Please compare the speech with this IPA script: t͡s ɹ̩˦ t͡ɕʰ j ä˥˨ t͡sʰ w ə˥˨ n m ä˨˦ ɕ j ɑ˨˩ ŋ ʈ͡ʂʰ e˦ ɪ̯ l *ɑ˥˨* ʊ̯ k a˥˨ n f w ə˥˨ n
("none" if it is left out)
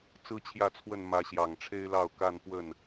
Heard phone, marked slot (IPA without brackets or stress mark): ɑ˥˨